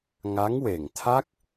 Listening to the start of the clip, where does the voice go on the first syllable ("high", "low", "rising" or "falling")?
rising